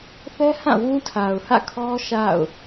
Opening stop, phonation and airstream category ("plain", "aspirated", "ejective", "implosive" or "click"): aspirated